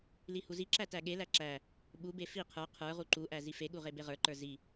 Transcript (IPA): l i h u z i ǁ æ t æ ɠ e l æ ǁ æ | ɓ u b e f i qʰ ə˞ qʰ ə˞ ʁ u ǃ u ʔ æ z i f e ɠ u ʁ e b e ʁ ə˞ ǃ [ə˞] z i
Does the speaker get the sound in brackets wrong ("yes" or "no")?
no